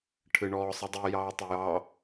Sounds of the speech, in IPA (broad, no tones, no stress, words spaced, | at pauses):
ʈʰɨɳɔːsˤɨdˤi jɑːtˤʏjɑ